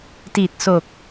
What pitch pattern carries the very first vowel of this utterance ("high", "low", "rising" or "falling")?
low